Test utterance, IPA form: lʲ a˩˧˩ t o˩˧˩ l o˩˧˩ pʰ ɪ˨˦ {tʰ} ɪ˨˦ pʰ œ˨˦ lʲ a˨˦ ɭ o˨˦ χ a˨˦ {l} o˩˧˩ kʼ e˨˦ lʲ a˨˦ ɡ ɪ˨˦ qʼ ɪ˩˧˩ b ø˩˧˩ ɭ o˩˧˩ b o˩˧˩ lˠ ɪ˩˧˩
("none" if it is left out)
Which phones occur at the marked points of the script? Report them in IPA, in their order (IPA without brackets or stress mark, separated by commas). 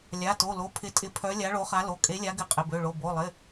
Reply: tʼ, l